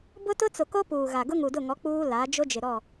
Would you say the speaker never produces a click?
yes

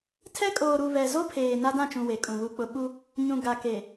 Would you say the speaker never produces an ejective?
no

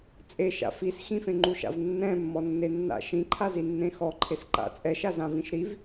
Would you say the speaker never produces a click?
no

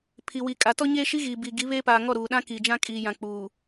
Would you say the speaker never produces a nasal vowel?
no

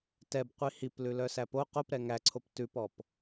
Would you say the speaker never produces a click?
no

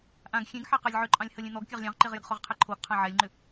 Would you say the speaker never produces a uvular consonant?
no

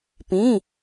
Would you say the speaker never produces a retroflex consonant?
yes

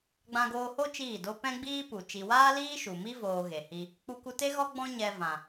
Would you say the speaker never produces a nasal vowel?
no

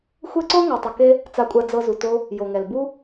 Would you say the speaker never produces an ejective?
no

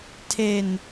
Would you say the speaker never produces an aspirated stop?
no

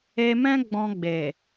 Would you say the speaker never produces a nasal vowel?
no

